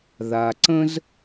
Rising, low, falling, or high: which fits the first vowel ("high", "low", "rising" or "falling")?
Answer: low